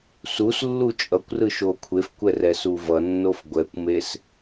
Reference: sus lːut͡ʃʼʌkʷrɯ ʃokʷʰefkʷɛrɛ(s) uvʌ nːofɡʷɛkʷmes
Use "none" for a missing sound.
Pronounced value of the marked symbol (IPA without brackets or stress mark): s